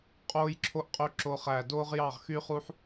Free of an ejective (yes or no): no